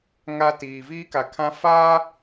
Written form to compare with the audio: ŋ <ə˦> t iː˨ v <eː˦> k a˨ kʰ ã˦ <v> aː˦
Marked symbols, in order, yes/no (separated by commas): no, no, no